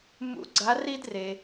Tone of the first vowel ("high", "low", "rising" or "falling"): rising